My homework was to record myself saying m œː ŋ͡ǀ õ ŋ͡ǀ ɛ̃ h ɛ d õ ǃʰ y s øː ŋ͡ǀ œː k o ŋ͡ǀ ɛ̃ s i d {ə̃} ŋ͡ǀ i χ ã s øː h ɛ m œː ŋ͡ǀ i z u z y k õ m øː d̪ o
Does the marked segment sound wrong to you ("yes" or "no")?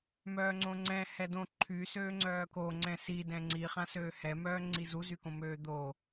yes